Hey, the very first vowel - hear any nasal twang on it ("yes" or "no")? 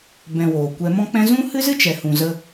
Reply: yes